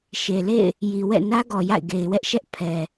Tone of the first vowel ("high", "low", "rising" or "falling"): low